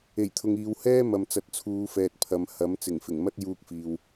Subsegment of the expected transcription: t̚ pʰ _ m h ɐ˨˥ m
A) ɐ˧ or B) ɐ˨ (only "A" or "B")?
B